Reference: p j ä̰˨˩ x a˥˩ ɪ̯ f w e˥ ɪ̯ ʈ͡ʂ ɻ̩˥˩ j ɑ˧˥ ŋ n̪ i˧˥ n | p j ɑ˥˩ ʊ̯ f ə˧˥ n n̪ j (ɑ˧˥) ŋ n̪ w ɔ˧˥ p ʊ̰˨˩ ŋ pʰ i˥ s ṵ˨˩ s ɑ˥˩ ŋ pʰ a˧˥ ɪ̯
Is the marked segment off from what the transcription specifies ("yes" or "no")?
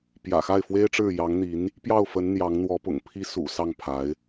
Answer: no